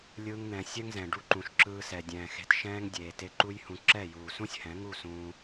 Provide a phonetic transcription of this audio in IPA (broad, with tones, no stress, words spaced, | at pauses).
lʲɯː˧ŋn̪ɛ̃˨ sʲɛ˦ŋzɛ̃˨ɖu˧ǃũ˨ʃ ǁɯː˧sɛ˨dʲɛ̃ː˨ xe̤˧t ʃɛ̃ː˦ŋdʲeː˨ te˧ǃu˦jhũ˧ ǁɛ˦˨juː˨ sũ˦sʲhɛ̃˨˦ŋu˦˨sũː˧